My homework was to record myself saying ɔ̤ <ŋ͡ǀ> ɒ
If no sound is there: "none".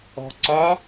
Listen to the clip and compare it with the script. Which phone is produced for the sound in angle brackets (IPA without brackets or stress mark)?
ǀ